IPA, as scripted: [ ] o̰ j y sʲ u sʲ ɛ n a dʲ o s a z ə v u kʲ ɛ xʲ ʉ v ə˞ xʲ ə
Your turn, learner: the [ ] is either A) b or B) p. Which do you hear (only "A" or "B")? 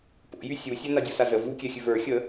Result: B